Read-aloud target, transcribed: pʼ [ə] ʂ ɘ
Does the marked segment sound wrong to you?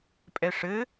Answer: yes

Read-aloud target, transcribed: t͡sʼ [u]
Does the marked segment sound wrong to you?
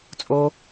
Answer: yes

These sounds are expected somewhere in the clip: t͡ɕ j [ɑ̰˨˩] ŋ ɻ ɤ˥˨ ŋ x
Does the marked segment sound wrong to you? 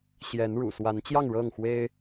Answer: yes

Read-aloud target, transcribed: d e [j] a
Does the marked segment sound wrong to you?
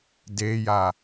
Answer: no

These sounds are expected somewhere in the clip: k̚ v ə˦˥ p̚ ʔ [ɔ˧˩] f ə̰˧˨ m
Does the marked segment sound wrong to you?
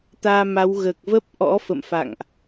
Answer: yes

